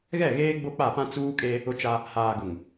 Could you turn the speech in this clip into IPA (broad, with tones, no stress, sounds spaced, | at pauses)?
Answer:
ɣ ɛ˦˨ ɣ eː˦ ɡ͡b o˦ k͡p a˦˨ p ã˦ t͡s uː˦ kʼ e˦ | ʊ˦ t͡ʃ a˦ | h aː˨ ɡ ʊ˨ ŋ